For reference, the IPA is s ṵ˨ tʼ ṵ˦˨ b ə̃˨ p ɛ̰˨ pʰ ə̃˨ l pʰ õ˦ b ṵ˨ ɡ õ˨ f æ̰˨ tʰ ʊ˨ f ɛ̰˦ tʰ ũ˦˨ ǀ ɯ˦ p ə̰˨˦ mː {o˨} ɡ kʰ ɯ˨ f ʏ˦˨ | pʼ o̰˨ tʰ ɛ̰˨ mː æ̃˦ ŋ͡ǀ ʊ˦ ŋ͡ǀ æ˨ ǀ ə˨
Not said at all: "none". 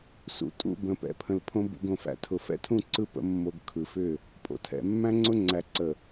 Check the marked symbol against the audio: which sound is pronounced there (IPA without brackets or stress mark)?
o˨